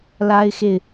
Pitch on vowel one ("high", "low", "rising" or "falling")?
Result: high